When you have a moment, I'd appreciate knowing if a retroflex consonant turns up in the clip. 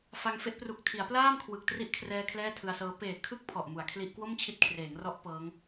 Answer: no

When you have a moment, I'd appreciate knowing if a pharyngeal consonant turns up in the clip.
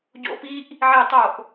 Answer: yes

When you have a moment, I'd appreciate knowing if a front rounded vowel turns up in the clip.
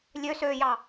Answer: yes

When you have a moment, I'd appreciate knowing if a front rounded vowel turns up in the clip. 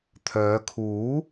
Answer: yes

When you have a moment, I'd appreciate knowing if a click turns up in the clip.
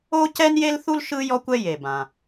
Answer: no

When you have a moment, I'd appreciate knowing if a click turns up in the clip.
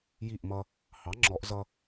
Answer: yes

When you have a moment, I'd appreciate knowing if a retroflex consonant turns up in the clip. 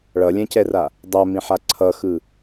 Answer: yes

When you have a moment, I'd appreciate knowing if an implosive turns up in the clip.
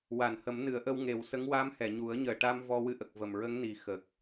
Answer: no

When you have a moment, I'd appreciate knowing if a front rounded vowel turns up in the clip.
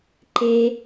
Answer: no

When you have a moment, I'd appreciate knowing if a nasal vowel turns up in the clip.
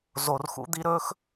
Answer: no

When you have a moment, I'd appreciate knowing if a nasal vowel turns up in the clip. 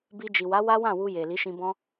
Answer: yes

